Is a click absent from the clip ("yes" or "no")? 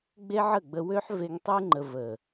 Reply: no